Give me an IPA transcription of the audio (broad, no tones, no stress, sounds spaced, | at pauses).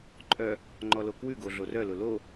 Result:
ǃʼ œ | ŋ͡ǃ ɔ l o k w ʉ ɡ o ɮ o r œ l ʊ l o